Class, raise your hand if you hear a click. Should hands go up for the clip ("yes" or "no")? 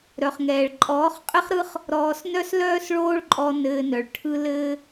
yes